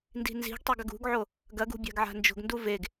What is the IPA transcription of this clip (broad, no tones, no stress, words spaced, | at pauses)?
ndi̤nzi̤ɡtˤeɡ ɐɡṳɡʕo | ɡɐɡṳ bʲa̤ɡʕa̤nd͡ʒo̤ɡndu veɡ